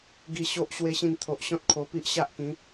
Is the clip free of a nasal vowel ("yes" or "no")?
no